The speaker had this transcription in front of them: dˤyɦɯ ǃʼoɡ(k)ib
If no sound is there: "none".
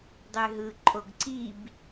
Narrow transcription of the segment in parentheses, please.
ǀ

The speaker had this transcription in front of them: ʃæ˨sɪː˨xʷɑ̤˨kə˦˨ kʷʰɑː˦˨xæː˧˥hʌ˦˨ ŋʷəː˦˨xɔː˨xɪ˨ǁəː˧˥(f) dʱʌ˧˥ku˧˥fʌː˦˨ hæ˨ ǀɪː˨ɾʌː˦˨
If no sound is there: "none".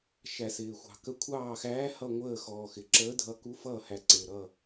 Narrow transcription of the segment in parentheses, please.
none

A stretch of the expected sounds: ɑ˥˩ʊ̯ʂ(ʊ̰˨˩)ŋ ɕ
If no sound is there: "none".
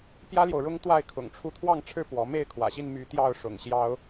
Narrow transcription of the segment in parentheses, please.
ʊ̰˨˩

